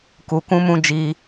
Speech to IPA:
ku˨kũ˧mũ˧ d͡ʒi˧

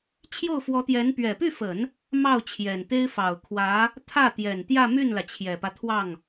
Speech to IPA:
t͡ɕʰjo˥˩ʊ̯fwɔ˧˥t̪jɛ˧˥n pɥɛ˨˩py˥˩fə˨˩˦n | mɑ˥˩ʊ̯t͡ɕʰjɛ˨˩nt̪e˥ɪ̯ fɑ˨˩ʊ̯kʰwä˧˥ | t̪ʰä˥˩t̪jɛ˨˩n t̪jä˥˧my˥˩nlä˩ t͡ɕʰjɛ˨˩pä˦t̪ʰwɑ˥˩ŋ

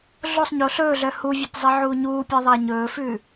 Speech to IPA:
ɮosˤɲo ɬɵːɮœ huvʲɔtzˤiʕuː ɲuːpʲɛðˤæ ɲɵːfʉ

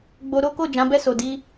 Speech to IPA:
ɡ͡bo˧ ɾo˦ko˦˨ d͡ʒã˨˦bɛ˦˨so˨ di˧

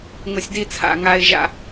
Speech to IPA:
ŋʊ˨sʲdi˧t͡sʰa̰˨ ŋa˧ɪ̯ ʒa̰˧

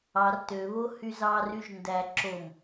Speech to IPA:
ɑr tøβo hyzɑ ryʒndæ ǁom

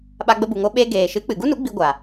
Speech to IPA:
ɓa˧ɡ͡bə˧bu˨ŋo˧ ɓe˧ ɡeː˨ʃɨ˨˦k͡pɨ˨ ɡu˦nu˨˦ɡ͡bi˧ ɡʷa˨

